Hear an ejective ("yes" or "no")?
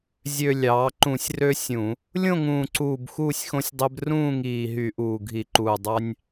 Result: no